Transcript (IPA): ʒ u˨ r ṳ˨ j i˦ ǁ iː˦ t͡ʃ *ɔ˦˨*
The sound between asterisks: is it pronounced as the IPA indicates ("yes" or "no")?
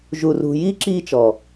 no